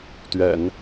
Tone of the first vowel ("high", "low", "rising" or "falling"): low